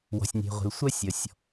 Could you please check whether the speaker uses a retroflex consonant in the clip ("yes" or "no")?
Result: no